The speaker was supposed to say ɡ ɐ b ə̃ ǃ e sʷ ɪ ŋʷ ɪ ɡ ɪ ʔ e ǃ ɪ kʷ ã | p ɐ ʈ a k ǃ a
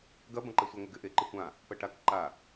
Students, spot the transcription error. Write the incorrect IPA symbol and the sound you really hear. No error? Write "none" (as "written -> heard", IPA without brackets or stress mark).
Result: ə̃ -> ɐ̃